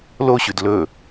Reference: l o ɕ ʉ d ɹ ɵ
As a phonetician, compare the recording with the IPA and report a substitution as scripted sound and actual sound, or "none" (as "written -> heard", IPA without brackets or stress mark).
ɹ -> l